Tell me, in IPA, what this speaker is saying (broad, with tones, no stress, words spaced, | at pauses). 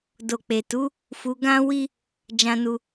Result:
do˨k͡pe˨tu˨˦ | fu˧ɡã˦wi˦ | d͡ʒã˦nu˦